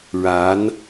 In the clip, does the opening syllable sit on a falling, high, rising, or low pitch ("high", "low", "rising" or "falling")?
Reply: rising